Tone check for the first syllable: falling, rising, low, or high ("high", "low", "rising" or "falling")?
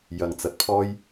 low